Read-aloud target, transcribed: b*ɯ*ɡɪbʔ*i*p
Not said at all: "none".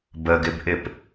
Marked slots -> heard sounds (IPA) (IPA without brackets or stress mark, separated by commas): ə, ɪ